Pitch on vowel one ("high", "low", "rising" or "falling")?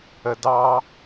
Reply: low